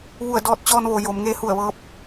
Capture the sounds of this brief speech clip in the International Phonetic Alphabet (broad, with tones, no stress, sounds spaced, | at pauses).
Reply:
ʋ u˧˩ ə̯ d ɔː˧ t̚ t͡ɕ ɔː˧ n ʋ o˩ j o˩˧ m ŋ eː˧ h u˧˩ ə̯ ʋ ɤː˧˥ p̚